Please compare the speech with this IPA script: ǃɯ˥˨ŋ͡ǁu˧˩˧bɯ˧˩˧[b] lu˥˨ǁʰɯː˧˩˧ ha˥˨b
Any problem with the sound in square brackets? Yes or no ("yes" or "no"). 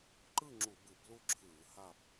no